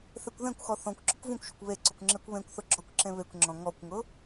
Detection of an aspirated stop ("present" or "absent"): absent